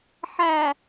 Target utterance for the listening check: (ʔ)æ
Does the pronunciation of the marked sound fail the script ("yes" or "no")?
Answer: yes